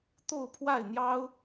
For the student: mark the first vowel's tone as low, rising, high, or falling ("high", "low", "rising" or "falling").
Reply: falling